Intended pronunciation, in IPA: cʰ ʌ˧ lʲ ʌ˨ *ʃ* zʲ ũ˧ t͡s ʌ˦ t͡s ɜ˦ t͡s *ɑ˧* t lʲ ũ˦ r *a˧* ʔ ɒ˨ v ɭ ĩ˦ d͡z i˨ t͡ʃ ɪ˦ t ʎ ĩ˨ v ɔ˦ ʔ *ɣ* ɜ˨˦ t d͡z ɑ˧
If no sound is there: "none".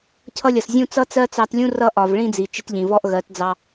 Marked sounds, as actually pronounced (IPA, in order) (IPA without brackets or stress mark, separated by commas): s, ɑ˧, ʌ˧, ɣ